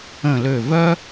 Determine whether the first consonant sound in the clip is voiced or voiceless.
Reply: voiced